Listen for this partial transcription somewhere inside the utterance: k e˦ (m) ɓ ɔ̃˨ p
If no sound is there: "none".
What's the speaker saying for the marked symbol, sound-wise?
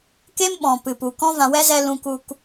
m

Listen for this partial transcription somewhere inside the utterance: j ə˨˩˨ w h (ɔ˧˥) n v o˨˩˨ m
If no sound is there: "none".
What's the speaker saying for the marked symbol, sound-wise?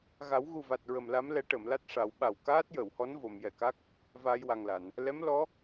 ɔ˧˥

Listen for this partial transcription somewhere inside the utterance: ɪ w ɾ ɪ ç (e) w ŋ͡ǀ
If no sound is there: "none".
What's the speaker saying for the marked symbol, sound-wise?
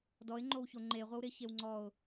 e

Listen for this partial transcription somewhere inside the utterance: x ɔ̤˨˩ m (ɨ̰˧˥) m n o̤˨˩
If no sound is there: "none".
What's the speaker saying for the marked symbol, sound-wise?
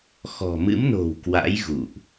ɨ̰˧˥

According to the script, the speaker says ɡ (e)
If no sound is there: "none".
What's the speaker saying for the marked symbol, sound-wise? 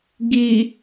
i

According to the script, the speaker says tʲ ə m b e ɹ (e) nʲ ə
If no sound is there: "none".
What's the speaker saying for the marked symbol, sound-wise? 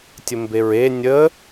e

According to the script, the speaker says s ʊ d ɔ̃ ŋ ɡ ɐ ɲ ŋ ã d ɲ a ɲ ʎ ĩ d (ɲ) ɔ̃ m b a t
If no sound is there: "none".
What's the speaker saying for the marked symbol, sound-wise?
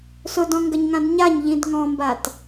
ŋ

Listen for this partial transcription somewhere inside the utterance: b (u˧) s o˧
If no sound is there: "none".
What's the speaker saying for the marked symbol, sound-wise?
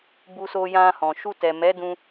u˧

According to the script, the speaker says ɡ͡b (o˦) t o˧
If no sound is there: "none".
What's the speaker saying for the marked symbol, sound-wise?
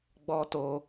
ɔ˦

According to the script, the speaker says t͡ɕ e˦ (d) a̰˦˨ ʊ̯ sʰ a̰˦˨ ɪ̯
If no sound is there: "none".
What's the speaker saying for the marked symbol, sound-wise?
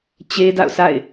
d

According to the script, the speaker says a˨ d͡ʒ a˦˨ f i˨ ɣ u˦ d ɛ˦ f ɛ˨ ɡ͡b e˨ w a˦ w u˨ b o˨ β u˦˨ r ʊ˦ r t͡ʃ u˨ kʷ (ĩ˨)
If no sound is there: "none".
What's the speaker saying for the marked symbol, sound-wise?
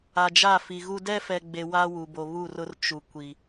i˨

